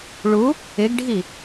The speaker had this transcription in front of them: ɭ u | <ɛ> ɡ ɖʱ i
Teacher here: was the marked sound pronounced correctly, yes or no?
no